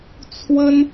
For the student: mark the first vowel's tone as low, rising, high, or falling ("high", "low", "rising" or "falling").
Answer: high